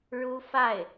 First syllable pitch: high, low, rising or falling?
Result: high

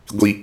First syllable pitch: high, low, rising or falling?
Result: high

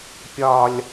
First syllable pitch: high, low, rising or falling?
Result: high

